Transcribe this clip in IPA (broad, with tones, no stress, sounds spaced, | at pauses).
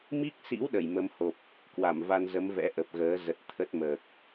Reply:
m i˦˥ k̚ s ḭ˧˥ w ɗ ə˧˩ j m ə˨˦ m h o˨˩ p̚ | k w a˧˩ m v a˧ n z ə˨˦ m v ɛ̰˧˥ ʔ ə˨˩ p̚ ɣ əː˨˦ z ə˨˩ t̚ t̪ʰ ə˦˥ t̚ m əː˨˩ k̚